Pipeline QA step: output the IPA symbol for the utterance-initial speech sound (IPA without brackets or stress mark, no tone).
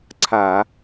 ǀʰ